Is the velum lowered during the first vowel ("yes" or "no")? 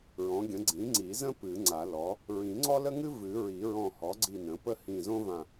yes